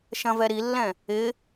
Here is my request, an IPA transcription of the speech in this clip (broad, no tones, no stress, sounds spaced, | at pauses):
ʃ ɐ̃ v ɛ ɾ i lː ɛ̃ | ɪ